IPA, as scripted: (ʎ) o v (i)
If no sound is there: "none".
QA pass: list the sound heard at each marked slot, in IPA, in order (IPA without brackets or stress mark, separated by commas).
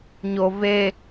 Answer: ɲ, e